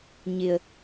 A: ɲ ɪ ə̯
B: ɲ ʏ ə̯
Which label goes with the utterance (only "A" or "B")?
A